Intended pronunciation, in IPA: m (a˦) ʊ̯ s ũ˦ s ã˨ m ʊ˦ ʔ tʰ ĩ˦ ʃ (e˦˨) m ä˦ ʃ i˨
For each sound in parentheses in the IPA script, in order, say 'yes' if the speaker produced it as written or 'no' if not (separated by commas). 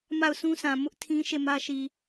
no, yes